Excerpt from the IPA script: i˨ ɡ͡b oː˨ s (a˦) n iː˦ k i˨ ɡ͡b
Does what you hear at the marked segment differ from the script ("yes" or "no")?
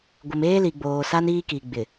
no